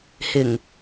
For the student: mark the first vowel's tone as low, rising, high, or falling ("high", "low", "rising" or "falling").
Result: low